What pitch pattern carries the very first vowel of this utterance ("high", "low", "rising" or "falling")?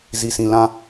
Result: low